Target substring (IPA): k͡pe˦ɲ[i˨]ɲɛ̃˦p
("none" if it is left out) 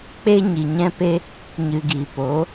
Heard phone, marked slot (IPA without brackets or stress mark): i˨